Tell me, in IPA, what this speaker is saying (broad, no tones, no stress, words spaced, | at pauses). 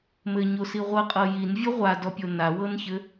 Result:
mɘɲosi ʁʷɤqʼɤ jinvʲɘ ʁʷadɔpʲo nawɤnçɘ